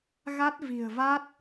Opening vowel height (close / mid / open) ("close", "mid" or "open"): open